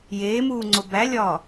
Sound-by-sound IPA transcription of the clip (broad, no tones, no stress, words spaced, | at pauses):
jeːmuːŋ͡ǀo bælʲɒː